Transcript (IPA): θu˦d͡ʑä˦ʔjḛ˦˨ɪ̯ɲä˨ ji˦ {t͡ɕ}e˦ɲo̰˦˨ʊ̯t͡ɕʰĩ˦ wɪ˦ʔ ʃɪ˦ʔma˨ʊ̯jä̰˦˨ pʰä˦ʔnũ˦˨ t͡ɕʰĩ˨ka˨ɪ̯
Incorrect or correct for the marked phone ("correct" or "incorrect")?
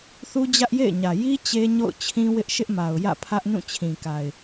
correct